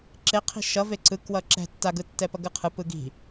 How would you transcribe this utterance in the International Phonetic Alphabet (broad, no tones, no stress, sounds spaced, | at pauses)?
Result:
ǁ e qʰ i̤ ʃ ʌ v e ǀ ɯ k w ʌ ǁ ɛ̤ tː a ɡ ɯ tː ɛ p ʌ ɡ ɯ qʰ ɯ p ɯ ɡ i̤